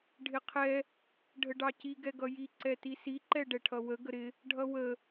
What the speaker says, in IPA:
ɖʱ ɪ qʰ ɛ | ɖʱ ə ɖ ɑ c i ɡ ɛ ɡ ʌ j i ǀ ɛ t i s i ǃ ɛ ɖ ɛ ʈʰ ʌ w ə ɡ ə ɾ ɪ | ɖʱ ʌ w ə

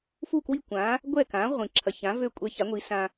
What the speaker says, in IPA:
f u˥˩ k w i˥˩ kʷ ã˩˥ | ɡʷ ɛ˥˩ k ã˩˥ ʁʷ ĩ˩ ǁʰ ɐ˩ ç ã˩˥ v ø˥ kʷʼ ɛ˧ ç a˩˥ ŋʷ i˩˥ s ã˧

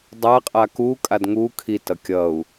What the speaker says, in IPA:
dˤ a qʼ a k u kʼ a d ŋ u kʰ i t ʌ kʲ ʌ u̯

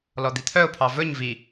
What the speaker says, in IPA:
l ɔ d̪ i t̪ʰ œ ʊ̯ pʰ ɑ v ɵ ɲ v i

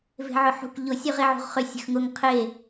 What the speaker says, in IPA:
v e̤ ʕ ʊ ħ ṳ k ʎ ʊ sʲ ʉ ʁ e ʕ ṳ ʁ χ ʏ sʲ ə̤ x ŋ ʊ ŋ qʰ e

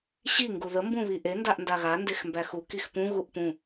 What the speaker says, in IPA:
ɕ i ŋ ɡ u ð ə m b ũ β i ʔ e n d a ʔ n d a ɣ a n d e x m b æ x u k i x p ũ ɣ u ʔ p ũ

